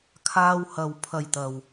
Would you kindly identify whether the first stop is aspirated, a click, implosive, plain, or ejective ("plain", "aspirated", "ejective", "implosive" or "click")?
aspirated